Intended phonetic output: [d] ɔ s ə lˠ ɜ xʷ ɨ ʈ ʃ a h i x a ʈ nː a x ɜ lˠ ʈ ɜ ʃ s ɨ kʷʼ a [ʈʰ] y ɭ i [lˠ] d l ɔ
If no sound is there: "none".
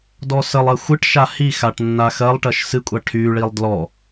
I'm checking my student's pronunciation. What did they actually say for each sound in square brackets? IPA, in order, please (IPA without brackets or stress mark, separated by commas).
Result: d, ʈʰ, lˠ